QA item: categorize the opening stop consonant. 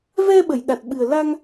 implosive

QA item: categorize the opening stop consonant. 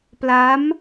plain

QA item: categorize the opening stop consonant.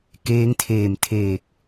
plain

